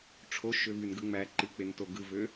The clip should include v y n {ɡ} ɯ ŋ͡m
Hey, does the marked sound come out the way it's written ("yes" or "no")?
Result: yes